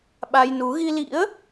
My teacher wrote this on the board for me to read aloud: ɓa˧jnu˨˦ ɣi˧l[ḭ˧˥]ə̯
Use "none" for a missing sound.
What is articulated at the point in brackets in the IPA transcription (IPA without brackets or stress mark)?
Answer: ḭ˧˥